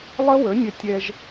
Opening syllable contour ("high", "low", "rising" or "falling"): high